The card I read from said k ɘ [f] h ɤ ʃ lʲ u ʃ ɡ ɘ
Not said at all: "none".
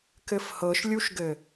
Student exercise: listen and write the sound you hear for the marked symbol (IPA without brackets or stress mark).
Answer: f